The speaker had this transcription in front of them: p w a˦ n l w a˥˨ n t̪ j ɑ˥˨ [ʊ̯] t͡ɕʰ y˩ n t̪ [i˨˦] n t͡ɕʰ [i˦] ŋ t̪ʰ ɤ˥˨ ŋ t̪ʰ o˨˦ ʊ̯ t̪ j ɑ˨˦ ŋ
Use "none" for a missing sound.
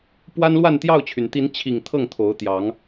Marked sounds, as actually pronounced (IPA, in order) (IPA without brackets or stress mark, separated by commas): ʊ̯, i˨˦, i˨˩